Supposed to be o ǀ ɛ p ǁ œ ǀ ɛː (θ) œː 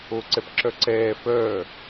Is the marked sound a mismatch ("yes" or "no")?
yes